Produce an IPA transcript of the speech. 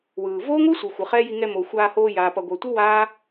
w ɯː˨ v oː˦ ŋʷ ɯ˦ sʷ ɯ˨ xʷ ɯ˨ χ ɛ˦ j i˧ ŋ ɛ˧ m o˨ xʷ aː˧ h oː˧ j aː˨ p ʌ˨ ɡʷ ʌ˨ tʷ ɯ˦ w aː˦

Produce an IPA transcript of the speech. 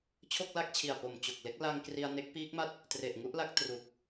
t͡ɕʰ o˥˩ k̚ l a˥˩ k̚ t͡ɕʰ i˨˩ a̯ p o˨˩ m t͡ɕ o˨˩ k̚ l e˥˩ k̚ l a˧ ŋ k r i˧ a̯ n e˦˥ k̚ p iː˦˥ k̚ m a˥˩ t̚ | t r e˨˩ ʔ ŋ u˥˩ ʔ l a˦˥ k̚ t r u˨˩ k̚

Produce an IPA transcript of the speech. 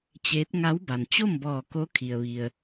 t͡ɕ eː˧˥ t̚ ŋ a˧˥ w b a˩ n t͡ɕ o˥˨ m b ɔː˧˩ k o˧˥ kʰ i˩ ə̯ ʋ i˩ ə̯

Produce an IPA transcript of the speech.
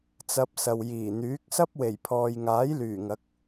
t͡s ɐ˧ p̚ s ɐ˨ w j iː˨˩ n̪ yː˨˥ k̚ s ɐ˥ p̚ w e˨˩ j pʰ ɔː˨ j ŋ aː˨˥ j l yː˨˩ ŋ ɐ˨˥ k̚

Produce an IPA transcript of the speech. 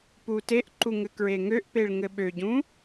p u t e ʔ ǃ u ŋ ɘ k ɹ e ŋ ø ʔ p e ɭ ŋ ɘ ɓ ø ɟ ũ

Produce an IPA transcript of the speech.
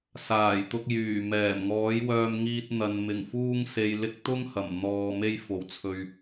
s aː˨˩ j t̪ ʊ˧ k̚ j yː˨˩ m ɛː˨˩ m ŋ ɔː˨˥ j w œː˧ m ŋ iː˧ t̚ n̪ ɐ˨ n m ɪ˨˩ ŋ f uː˧ ŋ s e˨ j l ɪ˧ k̚ t̪ ʊ˥ ŋ h ɐ˨˩ m n̪ ɔː˧ m e˥ j f o˨ w t͡sʰ ɵ˧ ɥ

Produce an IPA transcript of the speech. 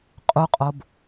qʼ u qʼ o b

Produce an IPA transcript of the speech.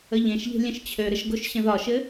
ə ʎ ẽ ʃ ʎ e̤ lʲ ə̃ ʃ t͡ɕʰ ø ɾ ə ʃ ɡ o ʃ ɕ ə̃ ð ɒ ʃ ɘ

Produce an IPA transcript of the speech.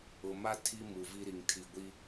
ʊ˨ m a˦ tʰ i˦ m u˨ v i˦ ɾ i˨ ŋ tʰ i˨ ɡʷ i˦

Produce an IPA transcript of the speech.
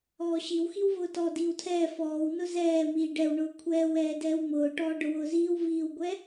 ɔː ɕ i w x i w v ʊː t ɔ d iː w tʰ ɛː f ɔː w n ʊ z ɛː m iː ɖ ɛ w ɳ ʊː kʷʰ ɛː w ɛː d ɛː w m ʊː ʈ ɔː ɖ ʊ w ʊː z iː w v iː w ɡʷ ɛ

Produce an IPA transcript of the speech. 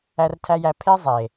æ˧ r tʰ æ˧ j æ˧ pʰ e˦ zˤ e˨

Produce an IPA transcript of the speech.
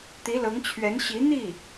t̪ i˧˥ l ɤ˧˥ ŋ t͡ɕʰ ɥ ɛ˧˥ n ɕ i˧˥ n̪ i˥˩

